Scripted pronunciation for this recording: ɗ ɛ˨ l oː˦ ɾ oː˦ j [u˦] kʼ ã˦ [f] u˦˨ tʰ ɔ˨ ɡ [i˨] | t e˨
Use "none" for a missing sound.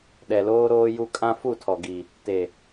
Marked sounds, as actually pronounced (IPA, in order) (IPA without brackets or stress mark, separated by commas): u˦, f, i˨